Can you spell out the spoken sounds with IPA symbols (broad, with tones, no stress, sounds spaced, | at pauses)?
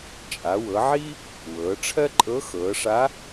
t͡ʃʼ a˩˧ w ɤ˩˧ ʕ i˥ | w ɤː˩˧ ʈ͡ʂʰ ɜ˥ ǃʼ ɤ˧˥ x ɤː˩˧ ʂ a˧˥